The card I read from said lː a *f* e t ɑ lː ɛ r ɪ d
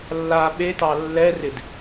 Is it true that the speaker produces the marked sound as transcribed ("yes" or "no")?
no